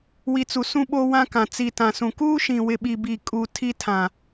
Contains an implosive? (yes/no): yes